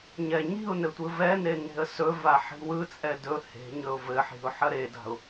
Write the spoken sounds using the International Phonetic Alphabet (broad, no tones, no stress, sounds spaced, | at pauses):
ɲ ɛ ɲ i̤ ʊ̯ n ɘ tʷ ɯ v ɛ n e n e̤ ə̯ s ɵ v a ħ i̤ w ɯ t͡sʼ ɛ d ɵ h e̤ ɲ ɵ ʊ̯ v ɘ ħ i̤ ʊ̯ ħ ɐ ɾ e d a̤ ʊ̯